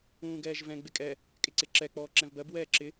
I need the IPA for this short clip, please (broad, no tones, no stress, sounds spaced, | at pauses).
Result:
ũː ɡ ɛː ʒ v ɛ̃ ɡ͡b ɪ kʼ ɛ | kʼ ɪ ǀ ɪ ǁ ɛ k͡p ɔː ǁ ɛ̃ v b ɜ b w ɛː ǁ ɪ